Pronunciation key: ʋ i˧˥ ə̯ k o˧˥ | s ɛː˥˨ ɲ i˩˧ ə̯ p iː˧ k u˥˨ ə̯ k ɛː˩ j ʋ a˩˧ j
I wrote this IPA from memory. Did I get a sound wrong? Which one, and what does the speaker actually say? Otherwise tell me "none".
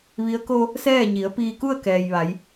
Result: o˧˥ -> o˧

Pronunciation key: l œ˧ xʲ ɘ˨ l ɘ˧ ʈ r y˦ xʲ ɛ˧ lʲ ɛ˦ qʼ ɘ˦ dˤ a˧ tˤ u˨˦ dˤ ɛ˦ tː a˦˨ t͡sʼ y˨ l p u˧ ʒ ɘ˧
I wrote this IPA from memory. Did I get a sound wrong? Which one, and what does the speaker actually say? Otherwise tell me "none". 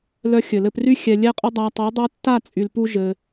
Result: ʈ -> p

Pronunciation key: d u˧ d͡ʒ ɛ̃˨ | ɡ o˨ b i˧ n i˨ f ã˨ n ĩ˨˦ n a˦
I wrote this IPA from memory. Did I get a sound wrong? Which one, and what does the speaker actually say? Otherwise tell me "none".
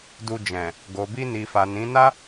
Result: ã˨ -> a˨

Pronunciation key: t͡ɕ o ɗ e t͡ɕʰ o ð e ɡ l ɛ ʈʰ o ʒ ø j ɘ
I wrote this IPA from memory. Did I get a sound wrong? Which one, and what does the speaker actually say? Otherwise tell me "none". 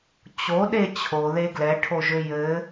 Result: none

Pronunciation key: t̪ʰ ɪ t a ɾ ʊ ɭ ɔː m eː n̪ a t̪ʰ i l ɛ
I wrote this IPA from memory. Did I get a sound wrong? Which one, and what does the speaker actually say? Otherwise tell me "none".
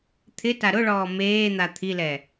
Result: none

